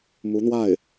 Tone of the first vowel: rising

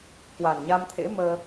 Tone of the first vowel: low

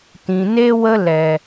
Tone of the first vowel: low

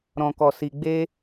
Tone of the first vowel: low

